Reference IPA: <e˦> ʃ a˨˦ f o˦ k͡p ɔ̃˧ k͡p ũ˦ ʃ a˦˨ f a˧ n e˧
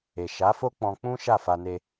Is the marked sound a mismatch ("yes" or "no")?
yes